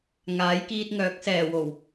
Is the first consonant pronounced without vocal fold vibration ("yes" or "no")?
no